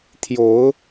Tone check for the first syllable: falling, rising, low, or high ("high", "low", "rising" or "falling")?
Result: rising